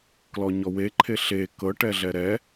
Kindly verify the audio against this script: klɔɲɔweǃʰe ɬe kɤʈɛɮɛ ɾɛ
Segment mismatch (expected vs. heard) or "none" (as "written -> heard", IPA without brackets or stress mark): none